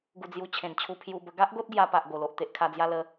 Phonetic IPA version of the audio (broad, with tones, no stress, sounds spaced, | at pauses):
ɡ u˧ d͡z j u˧ t͡ɕʰ ẽ˨˩ n t͡ɕʰ u˧ pʰ j u˧ b ə˧ ɡ a˦ ʔ ɡ o˦ t̚ ɡ j a˧ p a˨ ʔ ɡ o˨˩ l o˨ ʔ t̪ e˨ ʔ kʰ a˧ d͡z j a˧ l ə˧